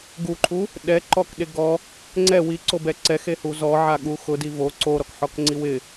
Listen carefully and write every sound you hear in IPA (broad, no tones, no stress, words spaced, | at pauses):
ɡuǃʰu | ɗɛǃɔkɗe ɡɔ | ŋ͡ǀɛ wiǀobɛ ǀɛxehu zɔʕaɠu xʊdi vo ǀoɾɔkħɔkŋ͡ǀi wɪ